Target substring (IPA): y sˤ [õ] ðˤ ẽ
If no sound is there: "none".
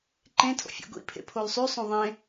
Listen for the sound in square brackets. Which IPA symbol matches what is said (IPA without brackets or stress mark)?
õ